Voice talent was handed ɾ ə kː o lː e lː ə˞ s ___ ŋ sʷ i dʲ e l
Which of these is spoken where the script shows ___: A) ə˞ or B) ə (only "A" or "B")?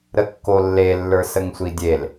B